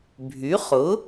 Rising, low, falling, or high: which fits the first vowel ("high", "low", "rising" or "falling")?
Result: rising